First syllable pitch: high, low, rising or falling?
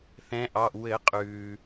rising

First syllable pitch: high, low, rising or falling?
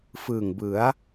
low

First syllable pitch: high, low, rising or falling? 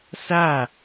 falling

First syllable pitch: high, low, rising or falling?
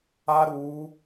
high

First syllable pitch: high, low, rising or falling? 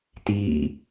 falling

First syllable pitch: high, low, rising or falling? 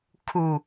low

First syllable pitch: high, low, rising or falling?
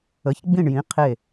rising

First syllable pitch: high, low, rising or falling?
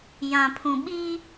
low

